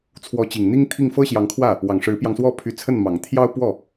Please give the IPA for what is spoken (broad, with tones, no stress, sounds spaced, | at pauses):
t͡sʰ w ɔ˧˥ t͡ɕ i˨˩ ŋ n̪ i˥ ŋ t̪ʰ i˥˩ ŋ f ɤ˥ ɕ j ɑ˧˥ ŋ kʰ w ä˥˩ | w ɑ˨˩ ŋ ʂ ɻ̩˧˥ p j ɑ˧ ŋ s w ɔ˥˩ pʰ y˧˥ t͡sʰ ə˥˩ n m ɑ˨˩ ŋ t̪ʰ j ɑ˥ ʊ̯ p w ɔ˥˩